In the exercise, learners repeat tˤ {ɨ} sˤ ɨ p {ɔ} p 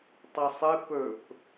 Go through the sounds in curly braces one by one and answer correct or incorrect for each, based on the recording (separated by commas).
correct, incorrect